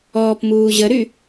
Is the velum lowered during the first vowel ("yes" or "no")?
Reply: no